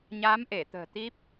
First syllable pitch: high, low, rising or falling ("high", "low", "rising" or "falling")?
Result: rising